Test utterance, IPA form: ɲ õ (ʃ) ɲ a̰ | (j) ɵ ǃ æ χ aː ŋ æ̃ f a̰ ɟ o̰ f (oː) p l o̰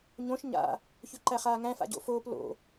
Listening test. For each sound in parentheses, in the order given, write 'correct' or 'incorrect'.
correct, incorrect: ç, correct

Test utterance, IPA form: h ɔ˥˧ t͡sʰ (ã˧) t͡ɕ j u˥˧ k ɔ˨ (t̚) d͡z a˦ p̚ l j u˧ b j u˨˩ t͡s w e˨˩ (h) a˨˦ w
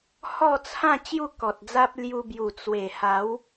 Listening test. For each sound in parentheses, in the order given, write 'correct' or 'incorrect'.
incorrect: ã˥˧, correct, correct

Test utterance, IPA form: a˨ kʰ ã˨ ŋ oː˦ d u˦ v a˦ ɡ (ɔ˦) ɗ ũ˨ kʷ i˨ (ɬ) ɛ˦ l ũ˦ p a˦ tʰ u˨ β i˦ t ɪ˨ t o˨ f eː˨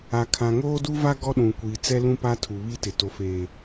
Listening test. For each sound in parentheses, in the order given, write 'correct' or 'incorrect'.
correct, incorrect: t͡s

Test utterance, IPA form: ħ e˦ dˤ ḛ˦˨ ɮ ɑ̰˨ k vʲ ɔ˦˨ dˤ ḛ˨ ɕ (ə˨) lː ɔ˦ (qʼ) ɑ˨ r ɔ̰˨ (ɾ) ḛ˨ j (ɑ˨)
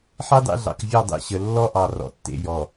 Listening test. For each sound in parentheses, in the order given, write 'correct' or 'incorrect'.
correct, incorrect: ʔ, incorrect: tː, incorrect: ɔ˨

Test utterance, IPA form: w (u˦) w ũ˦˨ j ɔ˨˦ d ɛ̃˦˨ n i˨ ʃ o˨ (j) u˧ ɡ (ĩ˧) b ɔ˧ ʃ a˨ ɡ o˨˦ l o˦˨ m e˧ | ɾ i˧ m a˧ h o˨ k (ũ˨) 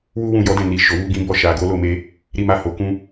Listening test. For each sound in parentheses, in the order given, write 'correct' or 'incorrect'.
correct, incorrect: w, correct, incorrect: ũ˧

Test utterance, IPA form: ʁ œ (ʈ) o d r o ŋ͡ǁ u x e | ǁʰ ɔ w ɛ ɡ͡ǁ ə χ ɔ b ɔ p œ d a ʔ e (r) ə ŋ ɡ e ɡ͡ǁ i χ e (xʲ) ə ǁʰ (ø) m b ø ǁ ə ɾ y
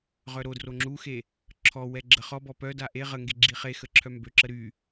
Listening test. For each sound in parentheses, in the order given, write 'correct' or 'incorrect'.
incorrect: ɾ, incorrect: ʁ, incorrect: x, incorrect: œ

